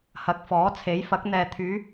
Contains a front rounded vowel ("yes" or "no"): yes